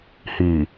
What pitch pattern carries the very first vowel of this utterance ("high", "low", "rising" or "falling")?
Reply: low